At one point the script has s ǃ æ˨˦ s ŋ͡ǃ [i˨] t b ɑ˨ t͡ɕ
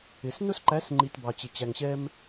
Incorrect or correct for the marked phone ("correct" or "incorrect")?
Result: correct